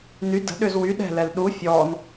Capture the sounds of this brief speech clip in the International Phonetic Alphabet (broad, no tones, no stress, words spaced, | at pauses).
ny də̤ ɗʏzwy ɗɛ̤lɛl ɗu fʲɔːn